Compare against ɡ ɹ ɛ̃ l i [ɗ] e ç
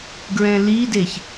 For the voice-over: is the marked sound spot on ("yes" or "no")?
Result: no